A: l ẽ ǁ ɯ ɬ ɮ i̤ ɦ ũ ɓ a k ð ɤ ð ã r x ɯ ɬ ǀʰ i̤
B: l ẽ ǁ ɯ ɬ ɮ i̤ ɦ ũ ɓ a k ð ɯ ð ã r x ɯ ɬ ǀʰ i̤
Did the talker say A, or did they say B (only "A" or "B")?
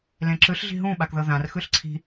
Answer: A